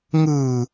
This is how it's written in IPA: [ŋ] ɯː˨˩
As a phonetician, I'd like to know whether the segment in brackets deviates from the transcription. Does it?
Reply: no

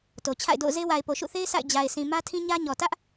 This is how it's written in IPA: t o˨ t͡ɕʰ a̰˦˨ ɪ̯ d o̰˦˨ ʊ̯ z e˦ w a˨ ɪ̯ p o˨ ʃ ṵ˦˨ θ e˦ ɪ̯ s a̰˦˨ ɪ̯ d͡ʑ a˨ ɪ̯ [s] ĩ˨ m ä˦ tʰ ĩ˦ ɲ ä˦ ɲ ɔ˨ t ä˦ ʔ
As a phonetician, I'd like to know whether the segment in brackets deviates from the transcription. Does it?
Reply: no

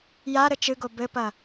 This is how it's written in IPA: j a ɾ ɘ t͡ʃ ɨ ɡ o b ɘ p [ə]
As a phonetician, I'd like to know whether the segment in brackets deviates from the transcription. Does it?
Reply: yes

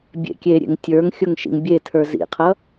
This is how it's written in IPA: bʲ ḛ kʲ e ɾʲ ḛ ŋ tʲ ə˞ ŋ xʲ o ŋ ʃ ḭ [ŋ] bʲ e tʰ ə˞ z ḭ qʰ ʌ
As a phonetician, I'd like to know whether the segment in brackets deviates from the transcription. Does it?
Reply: no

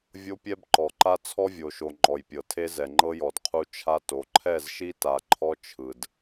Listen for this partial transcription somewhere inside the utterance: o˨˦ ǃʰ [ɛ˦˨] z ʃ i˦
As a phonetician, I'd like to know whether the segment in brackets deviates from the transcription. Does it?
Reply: no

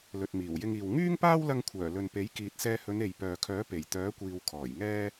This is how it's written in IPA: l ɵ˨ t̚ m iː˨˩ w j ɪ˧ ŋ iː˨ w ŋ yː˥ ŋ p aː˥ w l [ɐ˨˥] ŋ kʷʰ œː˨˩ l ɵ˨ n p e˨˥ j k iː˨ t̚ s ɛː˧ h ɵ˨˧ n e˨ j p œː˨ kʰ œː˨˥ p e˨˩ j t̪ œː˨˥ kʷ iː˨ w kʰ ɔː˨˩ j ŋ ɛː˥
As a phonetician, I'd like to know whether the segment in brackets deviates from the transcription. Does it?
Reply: yes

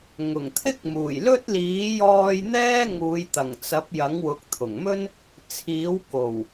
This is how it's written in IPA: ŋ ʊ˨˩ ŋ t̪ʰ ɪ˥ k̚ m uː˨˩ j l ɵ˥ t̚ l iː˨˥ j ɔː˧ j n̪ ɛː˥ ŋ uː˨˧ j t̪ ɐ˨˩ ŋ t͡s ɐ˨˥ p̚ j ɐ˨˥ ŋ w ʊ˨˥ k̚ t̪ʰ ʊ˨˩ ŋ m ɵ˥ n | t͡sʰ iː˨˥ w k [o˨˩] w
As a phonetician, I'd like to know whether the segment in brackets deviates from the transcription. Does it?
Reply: no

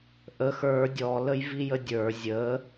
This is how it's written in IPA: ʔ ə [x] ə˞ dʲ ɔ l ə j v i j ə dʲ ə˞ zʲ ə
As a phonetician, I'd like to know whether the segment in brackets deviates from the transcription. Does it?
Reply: no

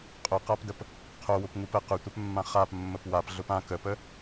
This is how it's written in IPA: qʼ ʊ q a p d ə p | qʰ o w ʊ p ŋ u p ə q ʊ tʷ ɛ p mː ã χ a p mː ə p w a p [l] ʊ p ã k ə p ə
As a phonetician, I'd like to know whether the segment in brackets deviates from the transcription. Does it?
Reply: yes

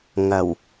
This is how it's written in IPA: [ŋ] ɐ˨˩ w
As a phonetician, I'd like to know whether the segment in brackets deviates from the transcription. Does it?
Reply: no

